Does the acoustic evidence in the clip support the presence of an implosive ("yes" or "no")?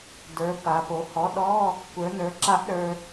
yes